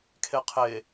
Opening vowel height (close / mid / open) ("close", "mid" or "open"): mid